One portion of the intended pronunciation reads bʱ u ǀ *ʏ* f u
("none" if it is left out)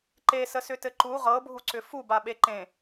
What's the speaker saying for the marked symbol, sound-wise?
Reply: ʏ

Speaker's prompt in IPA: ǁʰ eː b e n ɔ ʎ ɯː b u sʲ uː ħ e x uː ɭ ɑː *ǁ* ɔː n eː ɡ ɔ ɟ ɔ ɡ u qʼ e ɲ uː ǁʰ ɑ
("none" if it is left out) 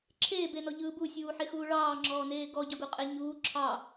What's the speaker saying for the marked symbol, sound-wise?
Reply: ŋ͡ǁ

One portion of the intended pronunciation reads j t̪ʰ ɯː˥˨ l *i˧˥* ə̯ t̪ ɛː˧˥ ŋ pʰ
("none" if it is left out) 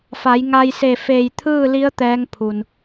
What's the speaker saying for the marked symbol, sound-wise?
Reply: i˧˥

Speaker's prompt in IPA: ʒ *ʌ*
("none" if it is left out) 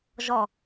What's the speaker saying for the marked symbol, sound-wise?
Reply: ɔ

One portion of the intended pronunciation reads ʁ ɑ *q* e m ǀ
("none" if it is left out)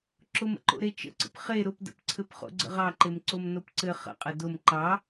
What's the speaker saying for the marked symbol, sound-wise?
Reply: ǃ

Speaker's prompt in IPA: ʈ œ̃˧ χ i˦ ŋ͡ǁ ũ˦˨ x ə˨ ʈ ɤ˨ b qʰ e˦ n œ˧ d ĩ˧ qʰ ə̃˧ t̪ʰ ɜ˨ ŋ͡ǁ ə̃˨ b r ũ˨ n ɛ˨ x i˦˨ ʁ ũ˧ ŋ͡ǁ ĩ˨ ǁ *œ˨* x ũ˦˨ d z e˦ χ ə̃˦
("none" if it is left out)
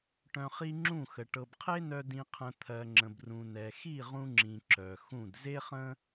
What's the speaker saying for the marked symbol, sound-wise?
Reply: œ˨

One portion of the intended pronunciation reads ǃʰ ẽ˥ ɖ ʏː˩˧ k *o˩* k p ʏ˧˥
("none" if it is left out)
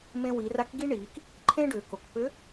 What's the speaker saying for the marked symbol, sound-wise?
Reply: o˩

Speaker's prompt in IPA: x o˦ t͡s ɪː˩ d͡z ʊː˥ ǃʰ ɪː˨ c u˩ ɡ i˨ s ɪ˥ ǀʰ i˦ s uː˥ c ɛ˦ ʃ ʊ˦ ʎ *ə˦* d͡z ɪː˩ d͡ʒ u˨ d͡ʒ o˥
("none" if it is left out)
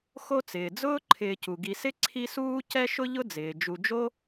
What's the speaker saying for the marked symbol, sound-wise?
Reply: ʊ˦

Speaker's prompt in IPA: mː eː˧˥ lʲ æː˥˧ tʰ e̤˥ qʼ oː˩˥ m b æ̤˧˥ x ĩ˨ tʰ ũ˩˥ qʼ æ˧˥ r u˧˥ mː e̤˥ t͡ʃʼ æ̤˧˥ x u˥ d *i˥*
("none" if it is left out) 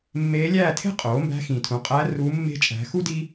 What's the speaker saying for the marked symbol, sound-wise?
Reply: i˥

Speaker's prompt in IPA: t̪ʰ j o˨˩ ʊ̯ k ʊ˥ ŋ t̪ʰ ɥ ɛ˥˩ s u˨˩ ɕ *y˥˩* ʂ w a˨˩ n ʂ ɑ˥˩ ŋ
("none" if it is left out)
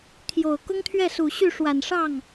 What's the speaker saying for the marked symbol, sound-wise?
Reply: y˥˩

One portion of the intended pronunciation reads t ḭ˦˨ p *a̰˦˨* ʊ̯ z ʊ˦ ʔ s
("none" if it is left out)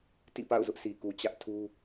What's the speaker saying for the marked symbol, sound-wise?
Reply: a̰˦˨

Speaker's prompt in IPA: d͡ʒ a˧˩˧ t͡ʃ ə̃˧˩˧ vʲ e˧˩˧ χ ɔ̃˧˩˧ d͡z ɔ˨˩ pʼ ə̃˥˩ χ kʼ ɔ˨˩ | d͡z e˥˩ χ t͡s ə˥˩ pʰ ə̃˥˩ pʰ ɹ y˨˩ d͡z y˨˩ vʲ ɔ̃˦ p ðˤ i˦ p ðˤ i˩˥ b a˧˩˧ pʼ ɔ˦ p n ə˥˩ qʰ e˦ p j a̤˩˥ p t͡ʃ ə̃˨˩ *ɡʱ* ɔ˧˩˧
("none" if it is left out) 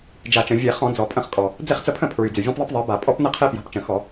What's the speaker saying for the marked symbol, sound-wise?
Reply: x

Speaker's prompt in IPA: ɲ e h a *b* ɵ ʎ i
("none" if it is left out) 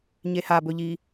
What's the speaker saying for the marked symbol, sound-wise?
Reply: b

